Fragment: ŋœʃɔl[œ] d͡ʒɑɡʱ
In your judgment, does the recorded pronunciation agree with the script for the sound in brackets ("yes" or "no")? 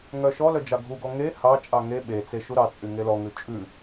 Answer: yes